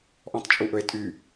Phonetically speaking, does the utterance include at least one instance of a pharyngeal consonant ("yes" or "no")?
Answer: no